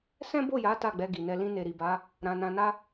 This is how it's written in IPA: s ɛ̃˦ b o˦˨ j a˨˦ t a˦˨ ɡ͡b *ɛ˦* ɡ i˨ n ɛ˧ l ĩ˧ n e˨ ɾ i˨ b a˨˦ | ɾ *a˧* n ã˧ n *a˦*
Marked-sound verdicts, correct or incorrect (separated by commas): incorrect, incorrect, correct